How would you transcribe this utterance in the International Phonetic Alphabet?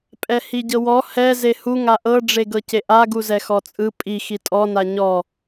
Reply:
pʼɛhiɟɤwɔ hɛ zehu ŋaʔɤ ɖ͡ʐeɡɤceʔa ɡuzɛxɔt͡sʼɯ pʼi xitʼɔ naɲɔ

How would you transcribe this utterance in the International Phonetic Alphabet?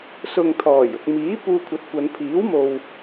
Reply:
sʊ˨ŋt̪ʰɔː˨˩jʊ˨k̚ miː˨˥ puː˧kʷʰɐ˨˥t̚kʷɐ˨˧n pʰiː˨˥wmo˨w

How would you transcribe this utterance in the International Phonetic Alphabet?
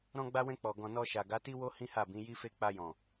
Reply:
ɾɔ̃˧ɡ͡ba˧wɛ̃˧ k͡pɔ˨ɡɔ̃˨nɔ˧ʃa˨ ɡa˨˦ti˦wo˦ hĩ˦ha˦˨bĩ˨˦ ji˦fe˦ k͡pa˧jɔ̃˨

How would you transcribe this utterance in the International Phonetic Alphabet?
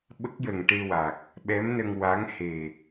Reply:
ɓə˦˥k̚jə˨˩ŋʈe˧wa˨˩k̚ | ɓɛ˧˥mnə˧ŋ wa˧˥ŋhe˨˩

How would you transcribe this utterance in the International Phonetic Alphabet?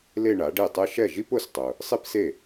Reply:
le˥˧ɳa˩˥ɖe˥˩tˤɛ˥ ʃɛ˥˩ʒi˥p ʊ˧˥stˤʊ˨ | sˤi˥pse˥˩

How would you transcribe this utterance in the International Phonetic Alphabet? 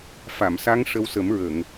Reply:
fa˨˩˨msa˧˥ŋʂə˧wsə˨˩˦m ɹə˨˩˨ŋ

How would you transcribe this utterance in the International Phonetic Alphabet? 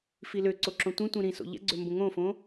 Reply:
filøǀo ǁõtʷĩtʷĩ ɾĩso̰ ʎɛ̰ɡ͡ǀø mbõŋõfõ

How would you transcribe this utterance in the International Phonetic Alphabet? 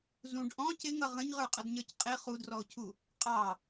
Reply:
zũɖ ʔɔ̃ cɪŋʌ ʁə̃ɲʁə˞qʼʌdɲə˞c qʼɪ χudrɔo̯cʰu | qʼɑ

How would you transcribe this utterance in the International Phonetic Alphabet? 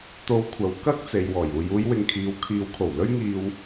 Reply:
t̪o˧wkʷʰɐ˨˧w kɐ˥k̚t͡se˨j wɔː˨˩juː˨juː˨˧j wɪ˨ŋkʰiː˨wkʰiː˨˧wkʰo˨˩w lɵ˥ɥŋiː˧w

